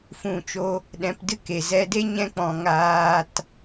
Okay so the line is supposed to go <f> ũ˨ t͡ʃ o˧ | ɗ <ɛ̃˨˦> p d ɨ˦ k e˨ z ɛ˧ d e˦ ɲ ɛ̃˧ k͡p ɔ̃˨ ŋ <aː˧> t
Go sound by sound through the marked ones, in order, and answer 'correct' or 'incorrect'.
correct, correct, correct

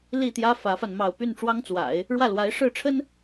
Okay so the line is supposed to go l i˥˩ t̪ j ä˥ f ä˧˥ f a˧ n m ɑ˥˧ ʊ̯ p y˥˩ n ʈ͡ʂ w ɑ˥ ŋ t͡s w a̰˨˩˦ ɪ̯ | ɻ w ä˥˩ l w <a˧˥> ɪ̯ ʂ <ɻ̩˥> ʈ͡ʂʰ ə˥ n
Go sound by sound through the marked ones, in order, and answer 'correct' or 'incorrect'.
correct, incorrect

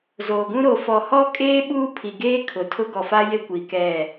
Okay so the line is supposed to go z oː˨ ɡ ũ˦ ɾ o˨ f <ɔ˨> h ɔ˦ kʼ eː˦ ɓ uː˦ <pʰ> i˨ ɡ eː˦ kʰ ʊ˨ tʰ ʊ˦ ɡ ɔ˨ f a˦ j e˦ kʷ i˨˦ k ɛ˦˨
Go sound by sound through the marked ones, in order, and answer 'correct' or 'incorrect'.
correct, correct

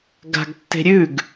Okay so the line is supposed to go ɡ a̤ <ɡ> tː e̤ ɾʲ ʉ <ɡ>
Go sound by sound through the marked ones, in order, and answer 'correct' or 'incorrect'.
correct, correct

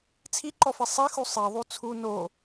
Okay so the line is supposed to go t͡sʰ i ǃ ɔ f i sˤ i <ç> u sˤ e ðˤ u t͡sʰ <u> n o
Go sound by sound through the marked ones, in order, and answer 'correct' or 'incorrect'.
incorrect, correct

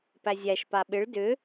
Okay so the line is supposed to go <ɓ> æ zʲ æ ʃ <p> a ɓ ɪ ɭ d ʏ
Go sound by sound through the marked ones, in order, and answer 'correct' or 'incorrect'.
incorrect, correct

